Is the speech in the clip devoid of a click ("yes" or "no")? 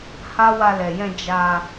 yes